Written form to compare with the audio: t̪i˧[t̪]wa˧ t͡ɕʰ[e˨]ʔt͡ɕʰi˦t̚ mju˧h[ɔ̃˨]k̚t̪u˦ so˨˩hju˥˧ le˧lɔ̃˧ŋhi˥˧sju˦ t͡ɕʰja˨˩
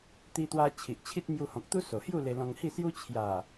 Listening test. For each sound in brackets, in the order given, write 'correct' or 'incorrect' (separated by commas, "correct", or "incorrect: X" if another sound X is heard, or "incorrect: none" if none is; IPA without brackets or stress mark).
correct, incorrect: i˨, correct